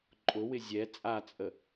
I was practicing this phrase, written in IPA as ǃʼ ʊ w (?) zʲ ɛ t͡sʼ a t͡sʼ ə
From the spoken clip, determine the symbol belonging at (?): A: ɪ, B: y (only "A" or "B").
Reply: A